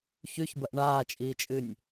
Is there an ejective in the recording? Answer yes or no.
yes